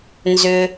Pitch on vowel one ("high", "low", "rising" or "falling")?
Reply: low